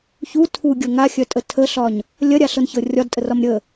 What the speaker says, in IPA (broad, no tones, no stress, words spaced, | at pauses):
çu tʰuɡʲɤ ŋaxʲœtʼə tʰəɬɒɲ | lʲɐɾʲaɬɤnçɤ rʲɒdtʼərɒm ɾʲə